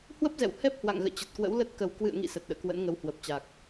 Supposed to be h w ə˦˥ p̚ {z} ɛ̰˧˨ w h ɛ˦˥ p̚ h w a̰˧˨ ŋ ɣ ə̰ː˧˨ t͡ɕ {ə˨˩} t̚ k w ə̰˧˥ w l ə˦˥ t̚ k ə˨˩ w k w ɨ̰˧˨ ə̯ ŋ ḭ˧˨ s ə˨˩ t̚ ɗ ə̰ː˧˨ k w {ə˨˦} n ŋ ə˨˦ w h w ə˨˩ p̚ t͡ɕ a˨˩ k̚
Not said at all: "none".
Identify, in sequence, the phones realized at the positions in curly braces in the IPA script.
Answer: z, ə˨˩, ə̰˧˥

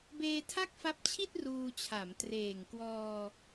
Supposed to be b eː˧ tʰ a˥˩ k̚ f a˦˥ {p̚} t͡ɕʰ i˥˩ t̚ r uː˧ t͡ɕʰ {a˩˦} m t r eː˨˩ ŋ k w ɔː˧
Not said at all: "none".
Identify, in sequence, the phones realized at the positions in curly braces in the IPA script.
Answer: p̚, a˩˦

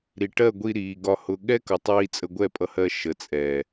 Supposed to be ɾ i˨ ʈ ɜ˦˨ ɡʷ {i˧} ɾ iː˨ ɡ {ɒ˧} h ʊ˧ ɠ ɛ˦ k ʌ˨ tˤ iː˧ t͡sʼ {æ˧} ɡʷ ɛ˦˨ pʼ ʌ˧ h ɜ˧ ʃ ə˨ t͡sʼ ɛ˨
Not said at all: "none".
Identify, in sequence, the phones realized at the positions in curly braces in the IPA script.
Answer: i˧, ɒ˧, ə˧

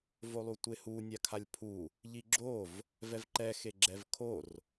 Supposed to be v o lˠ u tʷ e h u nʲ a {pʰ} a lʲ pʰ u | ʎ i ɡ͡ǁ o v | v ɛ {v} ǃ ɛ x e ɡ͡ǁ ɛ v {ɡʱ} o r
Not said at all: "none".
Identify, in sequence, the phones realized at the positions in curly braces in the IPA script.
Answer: kʰ, v, kʰ

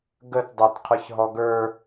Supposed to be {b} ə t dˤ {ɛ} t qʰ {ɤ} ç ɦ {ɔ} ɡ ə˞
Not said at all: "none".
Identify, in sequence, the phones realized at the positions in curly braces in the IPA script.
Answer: ɡ, ɛ, ə˞, ɔ

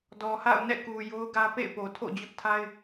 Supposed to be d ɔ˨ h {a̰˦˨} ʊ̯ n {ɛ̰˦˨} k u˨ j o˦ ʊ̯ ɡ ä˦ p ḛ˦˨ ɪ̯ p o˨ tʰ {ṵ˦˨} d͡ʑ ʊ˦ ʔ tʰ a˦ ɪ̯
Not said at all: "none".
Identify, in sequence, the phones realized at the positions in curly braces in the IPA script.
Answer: a̰˦˨, ɛ̰˦˨, o̰˦˨

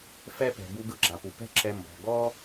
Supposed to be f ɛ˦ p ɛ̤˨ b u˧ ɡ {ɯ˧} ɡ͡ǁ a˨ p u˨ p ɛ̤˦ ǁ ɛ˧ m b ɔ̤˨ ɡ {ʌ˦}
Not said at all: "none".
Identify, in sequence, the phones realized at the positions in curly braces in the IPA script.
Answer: ɯ˧, ɔ˦

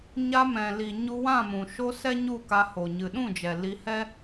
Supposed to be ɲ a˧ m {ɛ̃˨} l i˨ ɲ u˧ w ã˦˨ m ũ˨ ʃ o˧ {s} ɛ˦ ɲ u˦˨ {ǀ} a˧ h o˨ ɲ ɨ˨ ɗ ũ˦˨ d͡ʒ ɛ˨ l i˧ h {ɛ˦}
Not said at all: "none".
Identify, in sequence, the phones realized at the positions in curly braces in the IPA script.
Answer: ɛ̃˨, s, k, ɛ˦

